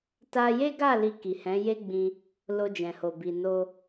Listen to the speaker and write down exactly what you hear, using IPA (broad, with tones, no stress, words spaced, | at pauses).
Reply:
ta˧je˦ɡa˦˨ li˧ki˨hɛ̃˨˦je˦ ɡ͡bĩ˧ | lo˧d͡ʒɛ̃˨ho˨bi˨ no˧